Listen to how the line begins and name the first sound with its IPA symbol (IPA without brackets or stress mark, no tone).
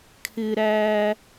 kʰ